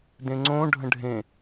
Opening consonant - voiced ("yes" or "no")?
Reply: yes